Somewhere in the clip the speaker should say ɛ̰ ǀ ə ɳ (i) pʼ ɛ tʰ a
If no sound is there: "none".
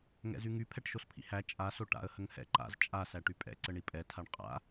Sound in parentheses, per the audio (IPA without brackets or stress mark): i